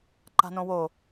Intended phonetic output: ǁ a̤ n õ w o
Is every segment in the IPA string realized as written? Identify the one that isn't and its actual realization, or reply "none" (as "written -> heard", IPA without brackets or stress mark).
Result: ǁ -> ǃ